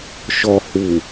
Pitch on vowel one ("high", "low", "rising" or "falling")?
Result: low